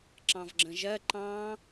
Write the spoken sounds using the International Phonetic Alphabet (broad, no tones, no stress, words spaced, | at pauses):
ǁɑ̃vɡ͡ǁə̃ʒɜ ǃɑ̃